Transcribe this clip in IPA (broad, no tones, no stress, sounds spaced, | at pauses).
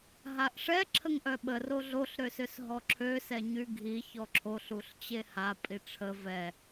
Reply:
ɦ a ʔ ʂ ɛ ǁʰ ə ŋ ʔ œ ɓ ə r o ɮ o ɬ ɾ ø s ø s ɦ ɔ ǁʰ ø s ɛ ɲ y ɡʱ i ç ɔ ǁʰ o ɬ u ɬ t͡ɕ e h a pʼ i ʈ͡ʂʰ ə v ɛ